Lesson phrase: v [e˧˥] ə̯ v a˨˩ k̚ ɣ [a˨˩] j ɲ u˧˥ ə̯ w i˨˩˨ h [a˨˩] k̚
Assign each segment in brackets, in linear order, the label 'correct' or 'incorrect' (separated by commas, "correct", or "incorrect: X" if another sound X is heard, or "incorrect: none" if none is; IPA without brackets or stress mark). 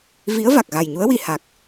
incorrect: i˧˥, correct, correct